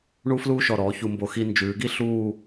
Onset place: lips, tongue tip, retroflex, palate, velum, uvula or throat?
retroflex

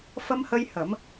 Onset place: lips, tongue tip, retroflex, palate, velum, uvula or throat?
lips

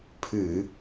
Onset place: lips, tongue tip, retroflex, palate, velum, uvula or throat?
lips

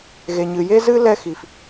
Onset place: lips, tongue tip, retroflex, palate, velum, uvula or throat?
velum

